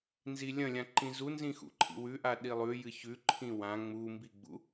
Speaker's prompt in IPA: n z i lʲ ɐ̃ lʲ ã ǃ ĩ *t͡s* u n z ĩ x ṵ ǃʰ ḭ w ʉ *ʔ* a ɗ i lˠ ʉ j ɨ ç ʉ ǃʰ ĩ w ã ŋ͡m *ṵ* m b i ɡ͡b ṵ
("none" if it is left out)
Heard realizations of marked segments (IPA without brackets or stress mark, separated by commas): z, ʔ, u